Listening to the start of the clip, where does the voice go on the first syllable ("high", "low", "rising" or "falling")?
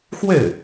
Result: falling